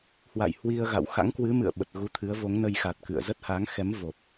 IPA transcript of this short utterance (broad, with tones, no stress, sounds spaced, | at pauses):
h w a̰˧˨ j h w i˧ ə̯ ɣ a̰˧˨ w x a̰˧˥ ŋ k w ɨ˨˦ m ɨ̰˧˨ ə̯ ɓ ə˨˩ t̚ ɣ u˨˦ t̪ʰ ɨ˨˦ ə̯ v o˨˦ ŋ n ə˧ j x a˨˩ t̚ k ɨ̰˧˨ ə̯ z ə˦˥ t̚ h a˨˦ ŋ x ɛ˨˦ m v o˨˩ p̚